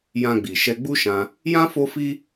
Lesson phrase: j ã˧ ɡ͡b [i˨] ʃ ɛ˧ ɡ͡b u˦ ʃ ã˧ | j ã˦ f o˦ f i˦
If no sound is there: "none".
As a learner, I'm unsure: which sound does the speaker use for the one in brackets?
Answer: i˨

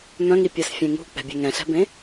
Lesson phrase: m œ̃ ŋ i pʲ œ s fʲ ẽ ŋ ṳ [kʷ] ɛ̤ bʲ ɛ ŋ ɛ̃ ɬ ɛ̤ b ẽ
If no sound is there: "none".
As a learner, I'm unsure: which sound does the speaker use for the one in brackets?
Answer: k͡p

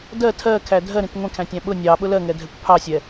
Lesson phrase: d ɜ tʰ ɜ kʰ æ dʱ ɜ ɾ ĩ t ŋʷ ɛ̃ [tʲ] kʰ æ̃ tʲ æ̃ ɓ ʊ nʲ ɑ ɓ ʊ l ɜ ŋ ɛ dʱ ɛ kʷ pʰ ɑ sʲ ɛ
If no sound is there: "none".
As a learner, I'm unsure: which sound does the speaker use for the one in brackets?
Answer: none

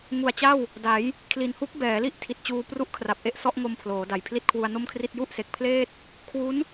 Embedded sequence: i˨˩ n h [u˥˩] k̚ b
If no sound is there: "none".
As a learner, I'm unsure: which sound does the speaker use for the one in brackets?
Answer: u˦˥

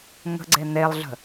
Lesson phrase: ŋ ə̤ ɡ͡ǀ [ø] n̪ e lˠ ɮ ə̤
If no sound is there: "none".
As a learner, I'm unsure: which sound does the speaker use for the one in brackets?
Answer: e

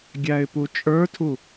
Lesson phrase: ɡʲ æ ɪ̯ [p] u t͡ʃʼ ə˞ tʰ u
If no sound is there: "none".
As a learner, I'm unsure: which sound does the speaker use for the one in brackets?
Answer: p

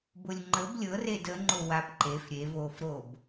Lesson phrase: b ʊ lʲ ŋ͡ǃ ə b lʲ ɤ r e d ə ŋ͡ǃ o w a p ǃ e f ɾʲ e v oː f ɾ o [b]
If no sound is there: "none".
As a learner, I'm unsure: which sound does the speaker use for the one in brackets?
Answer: b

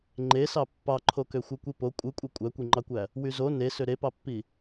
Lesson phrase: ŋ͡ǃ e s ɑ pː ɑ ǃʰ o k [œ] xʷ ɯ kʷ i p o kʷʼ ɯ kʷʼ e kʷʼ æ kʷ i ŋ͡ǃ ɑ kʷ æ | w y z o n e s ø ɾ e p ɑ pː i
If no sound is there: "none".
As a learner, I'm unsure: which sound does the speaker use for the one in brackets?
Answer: ø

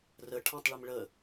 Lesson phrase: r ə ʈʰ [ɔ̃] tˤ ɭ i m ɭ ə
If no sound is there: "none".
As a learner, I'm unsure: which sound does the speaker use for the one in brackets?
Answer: ɔ̃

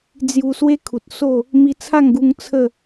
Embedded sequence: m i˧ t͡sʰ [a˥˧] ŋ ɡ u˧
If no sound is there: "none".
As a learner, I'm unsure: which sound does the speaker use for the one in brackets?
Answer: a˥˧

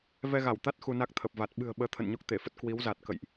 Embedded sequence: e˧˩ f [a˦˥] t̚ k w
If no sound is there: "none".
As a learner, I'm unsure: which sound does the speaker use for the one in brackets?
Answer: ə˦˥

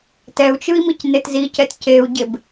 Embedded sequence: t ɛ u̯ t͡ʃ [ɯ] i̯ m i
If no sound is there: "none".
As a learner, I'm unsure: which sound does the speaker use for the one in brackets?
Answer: ɯ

